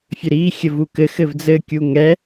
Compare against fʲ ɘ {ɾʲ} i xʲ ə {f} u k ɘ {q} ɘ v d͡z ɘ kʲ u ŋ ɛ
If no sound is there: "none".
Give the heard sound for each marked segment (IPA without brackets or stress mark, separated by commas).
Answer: ɾ, v, x